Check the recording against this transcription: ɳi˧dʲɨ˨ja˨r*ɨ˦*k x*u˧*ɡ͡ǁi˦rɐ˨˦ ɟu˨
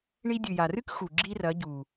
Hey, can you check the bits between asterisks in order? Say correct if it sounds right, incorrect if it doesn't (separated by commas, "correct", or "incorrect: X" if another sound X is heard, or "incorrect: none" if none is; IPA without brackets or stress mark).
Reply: correct, incorrect: u˨